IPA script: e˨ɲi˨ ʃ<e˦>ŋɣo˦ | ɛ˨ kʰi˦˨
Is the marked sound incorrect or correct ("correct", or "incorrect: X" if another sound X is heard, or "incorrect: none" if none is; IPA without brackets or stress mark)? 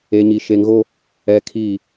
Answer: incorrect: e˨